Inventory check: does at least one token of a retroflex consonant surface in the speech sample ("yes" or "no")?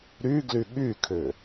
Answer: no